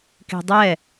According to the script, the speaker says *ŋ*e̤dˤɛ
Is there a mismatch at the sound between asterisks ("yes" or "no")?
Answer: yes